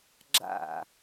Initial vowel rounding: unrounded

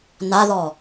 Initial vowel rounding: unrounded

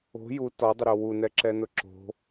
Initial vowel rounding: rounded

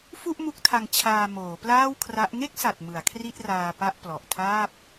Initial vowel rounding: rounded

